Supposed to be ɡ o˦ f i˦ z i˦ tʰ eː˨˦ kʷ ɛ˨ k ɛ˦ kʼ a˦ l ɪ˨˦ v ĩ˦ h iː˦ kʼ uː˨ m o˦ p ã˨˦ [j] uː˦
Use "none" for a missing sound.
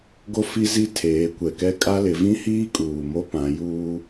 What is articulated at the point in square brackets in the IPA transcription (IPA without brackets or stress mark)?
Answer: j